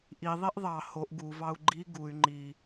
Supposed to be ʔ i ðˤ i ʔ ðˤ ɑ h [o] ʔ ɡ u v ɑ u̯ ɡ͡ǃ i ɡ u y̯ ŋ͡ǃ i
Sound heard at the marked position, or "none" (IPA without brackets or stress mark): o